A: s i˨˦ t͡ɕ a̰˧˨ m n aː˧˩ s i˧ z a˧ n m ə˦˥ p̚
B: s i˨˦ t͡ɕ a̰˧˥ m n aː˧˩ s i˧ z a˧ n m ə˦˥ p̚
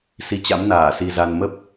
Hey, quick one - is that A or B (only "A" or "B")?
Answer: B